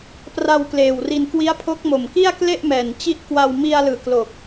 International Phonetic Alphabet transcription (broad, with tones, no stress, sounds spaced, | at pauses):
p r a˧ w k l eː˨˩ w r i˧ n k w i˦˥ a̯ pʰ o˦˥ k̚ m o˨˩ m k i˥˩ a̯ k l e˥˩ ʔ m ɛː˨˩ n t͡ɕ i˦˥ ʔ k w a˧ w m i˧ a̯ l ɯː˨˩ k l o˨˩ k̚